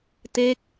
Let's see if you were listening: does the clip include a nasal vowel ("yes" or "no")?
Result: no